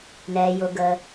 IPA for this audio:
n ɛː˩ j ʊ˩ ɡ ə˩

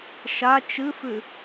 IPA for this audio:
ʃ a t͡ʃ ɨ f ʉ

